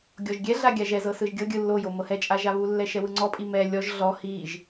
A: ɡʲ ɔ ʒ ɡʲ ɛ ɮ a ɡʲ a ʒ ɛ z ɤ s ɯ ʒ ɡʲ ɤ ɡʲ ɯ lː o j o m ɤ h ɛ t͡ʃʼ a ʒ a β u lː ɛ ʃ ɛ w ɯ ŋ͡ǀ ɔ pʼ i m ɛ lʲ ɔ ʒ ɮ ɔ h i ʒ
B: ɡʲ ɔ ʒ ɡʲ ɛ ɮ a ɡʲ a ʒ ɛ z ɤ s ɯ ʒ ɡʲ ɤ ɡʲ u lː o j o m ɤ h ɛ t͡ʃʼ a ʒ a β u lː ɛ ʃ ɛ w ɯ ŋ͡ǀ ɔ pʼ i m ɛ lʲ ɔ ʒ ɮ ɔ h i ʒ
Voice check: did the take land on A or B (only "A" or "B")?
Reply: A